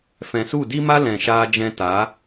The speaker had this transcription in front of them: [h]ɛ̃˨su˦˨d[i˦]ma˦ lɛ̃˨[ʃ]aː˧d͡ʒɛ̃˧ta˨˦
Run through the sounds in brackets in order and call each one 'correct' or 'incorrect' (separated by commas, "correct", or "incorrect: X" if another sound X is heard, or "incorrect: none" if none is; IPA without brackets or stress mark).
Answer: incorrect: f, correct, correct